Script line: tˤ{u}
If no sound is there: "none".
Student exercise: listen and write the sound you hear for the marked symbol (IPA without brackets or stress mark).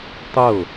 ʊ